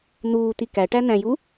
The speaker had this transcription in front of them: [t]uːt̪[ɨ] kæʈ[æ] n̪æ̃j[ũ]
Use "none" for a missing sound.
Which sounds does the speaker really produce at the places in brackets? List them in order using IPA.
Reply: n̪, i, æ, u

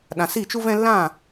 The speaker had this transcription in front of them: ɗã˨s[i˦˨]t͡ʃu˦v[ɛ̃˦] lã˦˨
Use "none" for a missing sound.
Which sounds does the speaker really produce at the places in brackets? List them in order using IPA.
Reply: i˦˨, ɛ̃˦

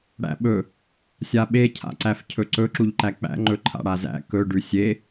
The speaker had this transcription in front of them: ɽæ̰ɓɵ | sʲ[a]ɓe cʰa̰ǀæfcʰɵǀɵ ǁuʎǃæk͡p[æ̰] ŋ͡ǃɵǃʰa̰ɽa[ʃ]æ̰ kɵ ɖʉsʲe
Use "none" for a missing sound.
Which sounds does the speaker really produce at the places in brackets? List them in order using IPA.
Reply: a, æ̰, z

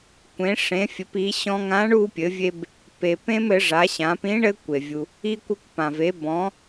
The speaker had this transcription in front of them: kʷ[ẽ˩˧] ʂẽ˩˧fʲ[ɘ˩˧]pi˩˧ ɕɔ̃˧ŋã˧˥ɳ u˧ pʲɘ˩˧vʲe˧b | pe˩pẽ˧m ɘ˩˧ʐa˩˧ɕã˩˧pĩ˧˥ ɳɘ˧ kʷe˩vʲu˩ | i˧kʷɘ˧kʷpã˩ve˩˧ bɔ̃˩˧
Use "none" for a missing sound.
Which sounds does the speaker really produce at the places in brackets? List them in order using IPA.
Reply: ẽ˩˧, ɘ˩˧

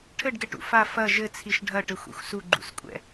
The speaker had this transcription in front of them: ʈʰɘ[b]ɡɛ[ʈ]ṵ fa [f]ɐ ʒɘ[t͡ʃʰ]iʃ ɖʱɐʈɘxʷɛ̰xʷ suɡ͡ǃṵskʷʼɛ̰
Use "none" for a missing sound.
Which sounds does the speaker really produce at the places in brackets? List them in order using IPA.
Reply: ɖ, ʈ, f, t͡sʰ

